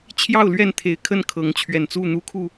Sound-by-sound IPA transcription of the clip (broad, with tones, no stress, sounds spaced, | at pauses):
t͡ɕʰ j ɑ˥˨ ʊ̯ l ɥ ɛ˥˨ n t̪ʰ e˨˦ ɪ̯ kʰ ə˥˨ n kʰ ɤ˨˦ ŋ t͡ɕʰ ɥ ɛ˨˩ n t͡s u˥˨ n̪ u˦ kʰ u˥˨